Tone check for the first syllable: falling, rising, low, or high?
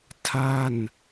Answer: falling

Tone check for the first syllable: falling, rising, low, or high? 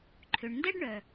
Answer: low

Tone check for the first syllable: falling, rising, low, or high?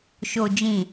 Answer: low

